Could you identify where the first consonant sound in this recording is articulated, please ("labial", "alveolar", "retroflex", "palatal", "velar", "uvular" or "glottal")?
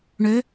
retroflex